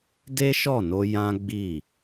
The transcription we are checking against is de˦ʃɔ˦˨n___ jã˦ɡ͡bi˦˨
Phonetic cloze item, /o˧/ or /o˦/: o˧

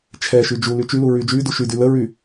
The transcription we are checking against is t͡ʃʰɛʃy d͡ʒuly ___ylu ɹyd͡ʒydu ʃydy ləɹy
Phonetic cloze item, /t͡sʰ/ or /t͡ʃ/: t͡ʃ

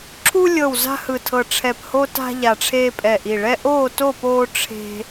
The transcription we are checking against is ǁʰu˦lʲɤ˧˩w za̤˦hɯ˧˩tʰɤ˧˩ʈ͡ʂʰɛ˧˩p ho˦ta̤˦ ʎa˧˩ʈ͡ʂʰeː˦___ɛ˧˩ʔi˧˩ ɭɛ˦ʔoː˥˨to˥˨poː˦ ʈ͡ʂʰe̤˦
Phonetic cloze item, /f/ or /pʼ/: pʼ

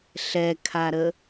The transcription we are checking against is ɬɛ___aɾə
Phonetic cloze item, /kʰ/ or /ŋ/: kʰ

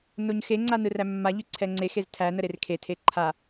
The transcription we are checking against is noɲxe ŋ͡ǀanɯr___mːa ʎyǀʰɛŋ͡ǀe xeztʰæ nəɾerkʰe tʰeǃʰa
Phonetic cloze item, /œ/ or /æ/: æ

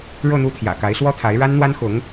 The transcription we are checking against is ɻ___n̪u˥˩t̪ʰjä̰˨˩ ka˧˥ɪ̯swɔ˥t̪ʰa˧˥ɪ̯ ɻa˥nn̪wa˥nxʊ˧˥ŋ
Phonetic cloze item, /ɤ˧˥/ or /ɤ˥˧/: ɤ˥˧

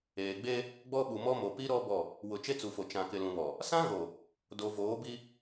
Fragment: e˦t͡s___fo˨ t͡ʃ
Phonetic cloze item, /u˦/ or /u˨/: u˨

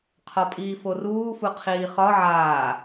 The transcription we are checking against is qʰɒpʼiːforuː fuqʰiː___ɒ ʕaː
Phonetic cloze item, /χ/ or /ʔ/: χ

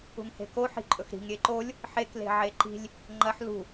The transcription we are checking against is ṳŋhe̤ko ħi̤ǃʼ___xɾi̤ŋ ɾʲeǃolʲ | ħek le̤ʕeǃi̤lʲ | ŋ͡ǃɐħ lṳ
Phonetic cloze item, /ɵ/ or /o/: ɵ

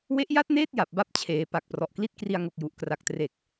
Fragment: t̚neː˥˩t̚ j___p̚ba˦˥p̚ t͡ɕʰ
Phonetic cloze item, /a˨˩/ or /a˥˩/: a˨˩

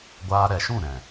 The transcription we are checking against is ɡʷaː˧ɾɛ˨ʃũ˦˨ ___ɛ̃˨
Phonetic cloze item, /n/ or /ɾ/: ɾ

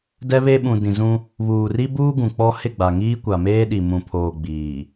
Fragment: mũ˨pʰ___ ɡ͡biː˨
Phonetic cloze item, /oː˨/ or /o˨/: oː˨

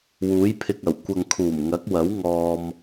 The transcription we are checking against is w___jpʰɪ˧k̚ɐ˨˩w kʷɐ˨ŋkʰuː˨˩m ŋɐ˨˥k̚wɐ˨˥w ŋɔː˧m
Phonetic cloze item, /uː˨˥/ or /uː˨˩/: uː˨˥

